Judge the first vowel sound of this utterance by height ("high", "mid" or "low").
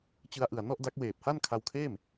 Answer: high